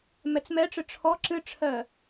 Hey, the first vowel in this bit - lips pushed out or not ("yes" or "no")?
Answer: no